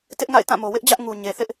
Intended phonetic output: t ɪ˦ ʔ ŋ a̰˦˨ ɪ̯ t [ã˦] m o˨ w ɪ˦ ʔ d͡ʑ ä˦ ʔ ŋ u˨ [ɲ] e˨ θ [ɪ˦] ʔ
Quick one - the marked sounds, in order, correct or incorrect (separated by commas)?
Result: incorrect, correct, correct